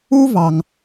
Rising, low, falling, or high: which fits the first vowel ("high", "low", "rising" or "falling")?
high